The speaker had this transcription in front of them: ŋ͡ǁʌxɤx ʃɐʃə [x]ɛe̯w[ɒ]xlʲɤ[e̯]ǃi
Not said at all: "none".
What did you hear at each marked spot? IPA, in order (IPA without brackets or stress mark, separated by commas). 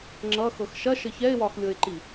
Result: ç, ɒ, e̯